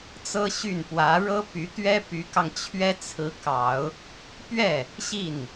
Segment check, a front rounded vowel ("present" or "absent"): present